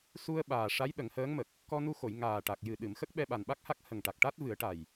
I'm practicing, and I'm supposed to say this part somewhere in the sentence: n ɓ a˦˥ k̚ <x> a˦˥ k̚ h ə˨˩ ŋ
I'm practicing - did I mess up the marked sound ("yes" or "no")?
yes